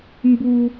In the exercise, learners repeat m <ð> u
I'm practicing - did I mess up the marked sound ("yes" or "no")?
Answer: yes